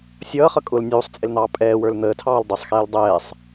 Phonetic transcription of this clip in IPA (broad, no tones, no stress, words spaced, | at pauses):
sʲʌːχʌ kʼʊl nʲuːsˤt͡sʼɪln̪ɑː pʼɛːwə˞l n̪əːtʰɑːl dˤʊsˤxɛːl dˤɛːsˤ